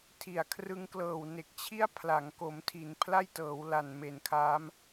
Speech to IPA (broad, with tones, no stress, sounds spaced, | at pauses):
tʰ i˨˩ a̯ kʰ r ɯ˦˥ ŋ k l ɤː˨˩ w n e˨˩ k̚ t͡ɕʰ i˥˩ a̯ pʰ l a˩˦ ŋ k o˩˦ m tʰ i˩˦ n pʰ l a˥˩ j t ɤː˩˦ w l a˨˩ n m e˨˩ n kʰ a˦˥ m